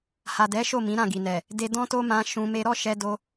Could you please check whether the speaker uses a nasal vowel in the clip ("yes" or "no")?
yes